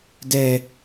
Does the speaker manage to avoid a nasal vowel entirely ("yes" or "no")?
yes